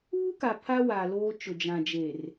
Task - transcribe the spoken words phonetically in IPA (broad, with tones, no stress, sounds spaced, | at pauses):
uː˦ k a˨ pʰ a˦ w a˨ l oː˦ t͡ʃ ʊ˨ d͡ʒ ã˨ d͡ʒ e˨ r